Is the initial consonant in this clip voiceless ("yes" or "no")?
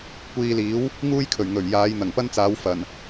yes